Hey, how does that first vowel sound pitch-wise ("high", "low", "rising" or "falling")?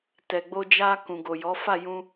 low